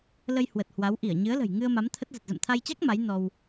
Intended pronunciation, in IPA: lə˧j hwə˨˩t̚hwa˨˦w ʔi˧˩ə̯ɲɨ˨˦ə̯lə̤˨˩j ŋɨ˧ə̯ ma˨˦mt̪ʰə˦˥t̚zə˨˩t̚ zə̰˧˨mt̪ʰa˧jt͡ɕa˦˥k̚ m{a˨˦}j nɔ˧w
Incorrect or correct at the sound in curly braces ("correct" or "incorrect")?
correct